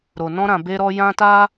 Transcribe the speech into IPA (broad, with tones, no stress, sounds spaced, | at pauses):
ɾ o˨ n ɔ̃˧ ɾ ã˨ b e˧ ɾ ɔ˧ j ã˧ t a˧